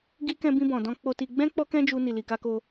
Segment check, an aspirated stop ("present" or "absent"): absent